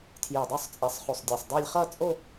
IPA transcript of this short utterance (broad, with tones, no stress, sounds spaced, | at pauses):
tʰ j e˧˩ dˤ u˥˩ sˤ t͡sʼ e˨˦ sˤ χ u˧˩ sˤ dʲ ɜ˧˩ sˤ dˤ e˥˧ lʲ χ ʌ˥˧ t͡sʼ o˥˧